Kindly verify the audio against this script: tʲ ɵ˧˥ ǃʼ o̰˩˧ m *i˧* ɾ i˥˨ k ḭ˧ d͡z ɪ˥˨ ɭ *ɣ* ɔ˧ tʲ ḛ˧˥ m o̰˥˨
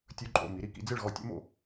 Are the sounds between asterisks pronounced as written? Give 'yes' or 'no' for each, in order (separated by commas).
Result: no, yes